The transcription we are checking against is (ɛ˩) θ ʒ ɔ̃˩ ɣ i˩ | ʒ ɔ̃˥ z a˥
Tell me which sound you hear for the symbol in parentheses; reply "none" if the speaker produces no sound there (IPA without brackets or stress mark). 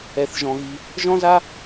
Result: ɛ˩